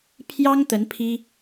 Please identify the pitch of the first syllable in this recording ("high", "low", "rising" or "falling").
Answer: high